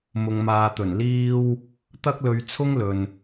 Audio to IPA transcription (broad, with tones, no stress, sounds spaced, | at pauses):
m ʊ˨ ŋ m aː˨ t̪ ɵ˨˩ n l iː˥ w | t̪ ɐ˥ k̚ l ɵ˧ ɥ t͡sʰ ʊ˥ ŋ l ɵ˨ n